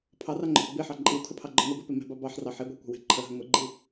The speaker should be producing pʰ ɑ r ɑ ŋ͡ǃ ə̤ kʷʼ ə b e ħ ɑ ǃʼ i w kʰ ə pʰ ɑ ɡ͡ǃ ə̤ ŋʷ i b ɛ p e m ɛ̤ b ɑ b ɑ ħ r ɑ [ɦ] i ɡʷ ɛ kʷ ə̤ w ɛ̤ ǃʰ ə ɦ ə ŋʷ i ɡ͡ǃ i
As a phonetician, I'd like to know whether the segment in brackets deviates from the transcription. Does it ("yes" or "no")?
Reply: yes